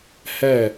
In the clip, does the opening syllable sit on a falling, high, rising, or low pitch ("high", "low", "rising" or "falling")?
falling